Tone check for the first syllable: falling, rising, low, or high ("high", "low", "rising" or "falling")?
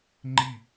falling